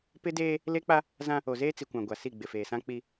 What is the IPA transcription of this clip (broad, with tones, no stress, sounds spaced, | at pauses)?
p ɪ˦ d eː˦ | l e˦ k͡p a˦ | z ã˦ | o˨ z eː˦ t͡s i˨ kʷ ã˨ ɡʷ a˨ s i˦˨ ɡ͡b ɪ˨ f eː˨ s ã˦ k͡p i˦